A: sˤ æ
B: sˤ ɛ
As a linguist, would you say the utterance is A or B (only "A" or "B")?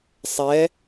B